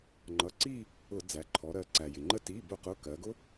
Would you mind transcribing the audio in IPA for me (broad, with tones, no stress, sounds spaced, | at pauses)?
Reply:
ŋ͡ǃ ʌ˩˧˩ ǀ i˥˧ | ʊ˧˩˧ d͡z æ˩˧ ǃʰ ɔ˩˧ ɾ ɜ˩˧ ǀ æ˩ j ɪ˩ ŋ͡ǃ ə˥˧ t i˩˧˩ b ʊ˧˩˧ q ʊ˩˧˩ k ɜ˩˧ ɡ ʊ˦˥